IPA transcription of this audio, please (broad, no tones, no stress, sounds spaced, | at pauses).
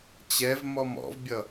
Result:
t͡ɕ ɛ v m ɔ m ɔ̰ v bʲ ʌ